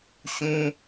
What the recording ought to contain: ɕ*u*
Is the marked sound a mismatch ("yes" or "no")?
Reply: yes